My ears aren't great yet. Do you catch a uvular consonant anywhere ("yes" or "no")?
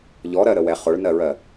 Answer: yes